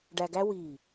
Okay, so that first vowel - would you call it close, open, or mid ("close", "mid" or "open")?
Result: open